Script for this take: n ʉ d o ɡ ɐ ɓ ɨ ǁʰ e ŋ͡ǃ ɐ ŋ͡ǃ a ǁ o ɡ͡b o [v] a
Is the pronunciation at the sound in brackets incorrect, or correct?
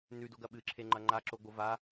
correct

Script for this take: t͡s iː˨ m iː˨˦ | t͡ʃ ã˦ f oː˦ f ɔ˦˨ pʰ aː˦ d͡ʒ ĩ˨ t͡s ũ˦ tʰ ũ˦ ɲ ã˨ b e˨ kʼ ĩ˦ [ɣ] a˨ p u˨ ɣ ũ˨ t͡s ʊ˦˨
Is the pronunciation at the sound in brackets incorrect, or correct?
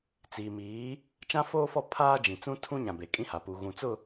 incorrect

